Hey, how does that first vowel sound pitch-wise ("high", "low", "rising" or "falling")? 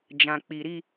low